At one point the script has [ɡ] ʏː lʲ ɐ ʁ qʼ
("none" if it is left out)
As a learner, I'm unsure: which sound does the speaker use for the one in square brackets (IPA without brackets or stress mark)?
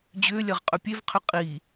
d͡ʑ